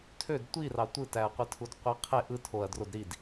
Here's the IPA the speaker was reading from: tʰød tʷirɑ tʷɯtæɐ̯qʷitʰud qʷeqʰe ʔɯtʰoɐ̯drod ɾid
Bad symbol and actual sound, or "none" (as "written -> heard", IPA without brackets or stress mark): none